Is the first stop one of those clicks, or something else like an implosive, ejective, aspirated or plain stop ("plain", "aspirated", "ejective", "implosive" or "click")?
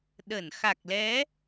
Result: implosive